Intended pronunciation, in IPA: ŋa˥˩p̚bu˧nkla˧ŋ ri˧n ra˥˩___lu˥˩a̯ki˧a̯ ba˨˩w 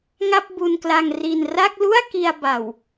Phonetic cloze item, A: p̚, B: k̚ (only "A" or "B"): B